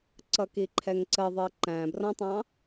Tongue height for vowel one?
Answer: mid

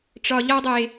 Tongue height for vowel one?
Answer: low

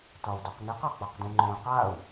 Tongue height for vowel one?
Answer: low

